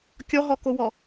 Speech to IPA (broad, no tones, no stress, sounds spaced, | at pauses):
kʲ ɔ ɦ ɔ k o w ɔ